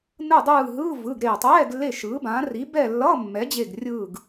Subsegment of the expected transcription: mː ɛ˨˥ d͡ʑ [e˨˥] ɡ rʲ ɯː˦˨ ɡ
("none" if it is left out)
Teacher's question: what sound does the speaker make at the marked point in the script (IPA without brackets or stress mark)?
e˦˨